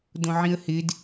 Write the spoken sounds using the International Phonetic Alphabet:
dõʕĩə̯hɪd

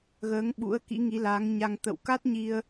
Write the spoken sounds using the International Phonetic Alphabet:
ɣəː˨˦ŋɓṵ˧˥ə̯ kḭ˧˥ŋi˨˦laː˨˦ŋ ɲa˧ŋ t̪ə̰˧˨wka˦˥t̚ɲi˧ə̯

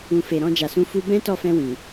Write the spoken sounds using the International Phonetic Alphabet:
ũ˨ fe˨ɾɔ̃˧d͡ʒa˨sũ˨˦ fu˧bɛ̃˦ tɔ˦˨fɛ̃˧wĩ˨

